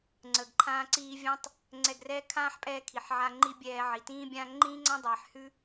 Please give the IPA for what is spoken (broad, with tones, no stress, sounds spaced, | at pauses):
ŋ͡ǀ əː˨ ɡ ǃʰ ãː˧ ǀ iː˧ vʲ ã˦ tˤ | ŋ͡ǀ ɛ˧ ɡ r ɛː˦ kʰ ãː˦ ħ pʼ ɛː˧ kʰ i˨ ħ ʕ a˧ ŋ͡ǃ i˦ bʲ ɛː˧ ʕ i˨ t ĩː˦ bʲ ãː˦ ŋ͡ǃ ĩː˦ ŋ͡ǀ ã˦ dˤ ɛː˨ ħ h ʉ˦